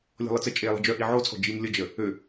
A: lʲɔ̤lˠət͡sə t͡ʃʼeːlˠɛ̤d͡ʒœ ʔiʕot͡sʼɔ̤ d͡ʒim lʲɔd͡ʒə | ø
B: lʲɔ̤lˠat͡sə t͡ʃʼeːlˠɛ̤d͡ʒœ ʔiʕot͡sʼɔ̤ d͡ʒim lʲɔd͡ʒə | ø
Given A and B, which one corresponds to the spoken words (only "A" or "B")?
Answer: A